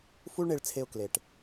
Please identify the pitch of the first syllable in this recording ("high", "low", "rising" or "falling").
high